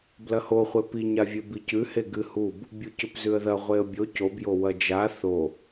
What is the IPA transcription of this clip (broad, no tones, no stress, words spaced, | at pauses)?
blɐhoχʷe piɲavʲe bicʉhe ɡɨhub | bʲucɵpzʉə̯ðɐ ʁʷeə̯bʲo cobjo wɐd͡ʒa θo